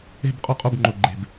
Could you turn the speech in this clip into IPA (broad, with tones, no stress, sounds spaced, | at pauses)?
e̤˥˨ b qʼ o˥˨ qʼ o˥˨ b ŋ͡ǃ o˨˩ ɡ͡ǃ e̤˨˩ b